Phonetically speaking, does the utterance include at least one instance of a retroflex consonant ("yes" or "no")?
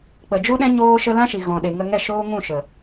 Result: no